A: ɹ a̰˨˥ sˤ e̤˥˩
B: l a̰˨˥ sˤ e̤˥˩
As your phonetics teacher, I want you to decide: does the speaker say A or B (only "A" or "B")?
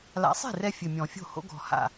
B